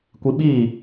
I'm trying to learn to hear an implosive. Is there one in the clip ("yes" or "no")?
yes